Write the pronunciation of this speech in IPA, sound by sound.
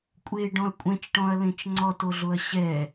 kʷʼeɖɔ̃ɐ̯ kʷʼɛ̃t͡ʃʈɔ̃ɐ̯lẽt͡ʃ ŋ͡ǀɔtoɮoɐ̯ ɕɛ

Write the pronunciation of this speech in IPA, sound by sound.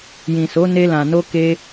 jĩ˨so˨˦ne˧lã˨ no˧ke˧

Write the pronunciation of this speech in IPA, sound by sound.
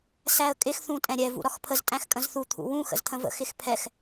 sæə̯kʼɪx θũtʼɛ̃ɾʲɛ vṵɾɒxpʰəz tʼæ̃xkʼə̃zθu t̪ʰṵwũ xə̰zt̪ʰə̃və̰ xɪxpʰɛx

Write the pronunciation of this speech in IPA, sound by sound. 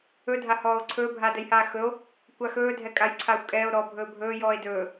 ɵdʱahɔːo̯ ǀʰɵːbʱaːdɛjhaː xɵo̯ | kʷaxɵːdʱɛ kʼajǀʰaːxʷkʼɛːo̯ɾɔː bʱɵːbʱɵːjɔːe̯ dɵː

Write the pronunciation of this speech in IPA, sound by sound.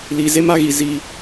liː˨ze˦ma˦ɣi˨ ziː˦

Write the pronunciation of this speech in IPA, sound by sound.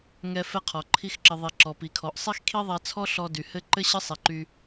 ŋɛ˧ fɛ˦qʰɔ˨ǃʰi˦xǁɘ˧ ðˤi˨ ǁɔ˨pi˨kʰɔ˨ʔ sˤi˦xkʰi˦ðˤɛ˧t͡sʰɔ˦ ɬɔ˧dy˨ hɘ˦ ǃɘ˦ɕɘ˦ sˤi˨ǃy˧

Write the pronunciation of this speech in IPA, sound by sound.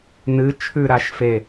nɨ t͡ʃʰʉɾaʃ fe

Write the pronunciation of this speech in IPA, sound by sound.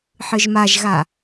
ħɯʒmaʒɣa

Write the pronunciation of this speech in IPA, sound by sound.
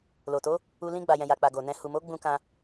lo˨to˨˦ | u˧ lĩ˧ ɡ͡ba˨jɛ̃˨ja˨k͡pa˨ ɡo˨nɛ̃˧ hu˨mo˨˦ ɡ͡bũ˧kã˧

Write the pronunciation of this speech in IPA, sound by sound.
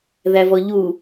ðævɔʎu

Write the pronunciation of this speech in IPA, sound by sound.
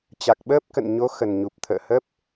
t͡ɕa˨˩k̚ɓəː˦˥p̚kə̰˧˨n ɲo˨˦ xə˨˩nɲu˨˩p̚t̪ʰə̰ː˧˨hə˦˥p̚

